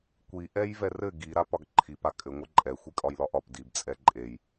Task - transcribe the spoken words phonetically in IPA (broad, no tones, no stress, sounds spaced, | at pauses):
kʷ i ʔ ɛ j v ɛ r ɘ ɡ i ɾ a p ɒ ɡ ǃʰ i p a kʼ ɘ ŋʷ ɘ ǃʼ ɛ xʷ i kʼ ɒ j l ɒ ʔ ɒ p d i b t͡sʼ ɛ ǃʼ e j